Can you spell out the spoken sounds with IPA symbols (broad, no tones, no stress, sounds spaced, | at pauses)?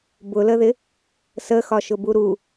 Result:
b ʊ l ə ð ɪ | s ə x ɒ ʃ ʊ b u ɾ u